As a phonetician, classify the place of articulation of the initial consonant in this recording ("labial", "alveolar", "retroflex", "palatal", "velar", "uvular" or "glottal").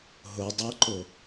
glottal